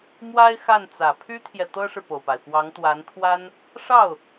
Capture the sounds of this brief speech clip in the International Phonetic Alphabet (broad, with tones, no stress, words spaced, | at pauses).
mwa˥ɪ̯xa˥˩n t͡sä˨˩pʰy˥t̪ʰjɛ˨ t̪ɤ˥ʂɻ̩˨po˩ʊ̯pa˩ɪ̯ pwɑ˧˥ŋt̪wa˧˥nt̪ʰwa˥n | ʂɑ˥˩ʊ̯